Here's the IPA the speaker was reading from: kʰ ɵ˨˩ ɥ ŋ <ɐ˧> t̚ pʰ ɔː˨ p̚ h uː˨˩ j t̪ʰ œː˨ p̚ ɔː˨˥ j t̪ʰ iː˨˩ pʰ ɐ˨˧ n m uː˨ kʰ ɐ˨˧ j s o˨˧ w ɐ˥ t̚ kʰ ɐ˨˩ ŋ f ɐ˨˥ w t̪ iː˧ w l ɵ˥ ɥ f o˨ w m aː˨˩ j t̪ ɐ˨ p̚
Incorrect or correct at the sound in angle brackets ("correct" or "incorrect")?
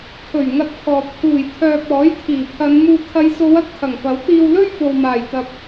correct